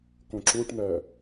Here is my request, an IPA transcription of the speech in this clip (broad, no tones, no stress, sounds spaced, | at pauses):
k õ ǁ u ʈ n̪ ɜ